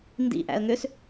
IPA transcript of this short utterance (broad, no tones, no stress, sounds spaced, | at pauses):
n d ḭ ʔ æ̰ ə̯ ŋ ø s